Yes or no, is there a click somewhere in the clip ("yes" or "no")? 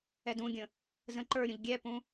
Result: yes